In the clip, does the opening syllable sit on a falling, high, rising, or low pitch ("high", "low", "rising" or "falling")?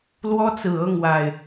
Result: high